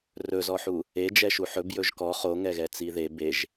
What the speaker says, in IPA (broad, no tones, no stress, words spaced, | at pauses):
rɵzɔħu | e d͡ʒɛʃuħɵb jɵʒkɔ χoŋɛɣɛ t͡siðe beʒ